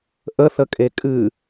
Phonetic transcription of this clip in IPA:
ʔ ə θ ə kʼ e kʼ ɨ

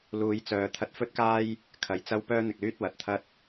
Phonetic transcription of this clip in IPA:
l uː˨˧ j t͡s œː˨ t̪ʰ ɐ˧ t̚ f ɵ˥ t̚ k aː˥ j | kʰ ɐ˨˧ j t͡s ɐ˥ w p œː˥ n̪ ɪ˨ k̚ l yː˥ t̚ w ɐ˨ t̚ t̪ʰ ɐ˥ t̚

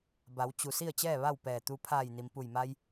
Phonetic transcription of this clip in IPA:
b a˩˧ w t͡ɕ u˩ s i˥˨ ə̯ t͡ɕ ɛː˥˨ ʋ a˥˨ w p ɛː˧˩ t̪ u˧ pʰ aː˧˩ j n i˩ m p u˧˩ j m a˧ j

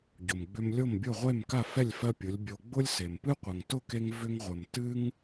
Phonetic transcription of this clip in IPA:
ɟ ʊ˩ m ɡ͡b ʏ˧ m lʲ o˥˩ m bʲ ʊ˥˩ ʁʷ e˥˩ m k a˥˩ f ɛ˥˩ lʲ f ɜ˥ pʲ ʊ˩˥ lʲ bʲ o˧ ɡ͡b ʊ˥ lʲ s e˩ m p ɨ˥ qʷ ə˩ ŋ t ʊ˥˩ k e˧ ŋ v ʏ˧ ŋ ʁʷ ə˩ m t ɨ˥ ŋ

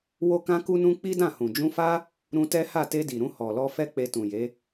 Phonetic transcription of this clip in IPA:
w o˧ k ã˧ k u˧ n ũ˧ k͡p i˦ d ã˦˨ h ũ˨ d͡ʒ ũ˧ f a˦ | ɾ ũ˧ t ɛ˦ h a˦˨ t e˧ d i˨ ɾ ũ˧ h ɔ˨ l ɔ˧ f ɛ˦ k͡p e˧ t ũ˨ j e˨˦

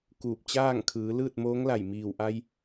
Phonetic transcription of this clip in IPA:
k uː˧˩ p̚ t͡ɕ aː˥˨ ŋ kʰ ɯː˩˧ l ɯː˥˨ t̚ m oː˧˥ ŋ l a˧˩ j m iː˧˩ w ʔ a˧ j

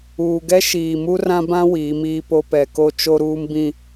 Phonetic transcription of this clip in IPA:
uː˨ ɡ ɛ˦ ʃ iː˨ m u˦ r ã˦ b ã˦ w iː˨˦ m iː˦ p o˦ p ɛ˨ k o˦ t͡ʃ o˦ ɾ uː˦ m b ĩ˦

